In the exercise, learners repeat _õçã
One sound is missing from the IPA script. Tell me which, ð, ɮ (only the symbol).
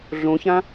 ɮ